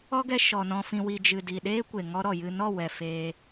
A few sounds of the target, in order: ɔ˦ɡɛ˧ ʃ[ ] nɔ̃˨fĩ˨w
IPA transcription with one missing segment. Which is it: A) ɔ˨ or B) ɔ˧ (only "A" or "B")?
A